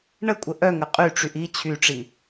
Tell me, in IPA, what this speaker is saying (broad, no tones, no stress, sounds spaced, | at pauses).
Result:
ɳ ə kʷʼ ə ʔ œ ŋ ə qʼ y ʈ͡ʂ y ʔ i t͡ɕʰ y ʈ͡ʂ i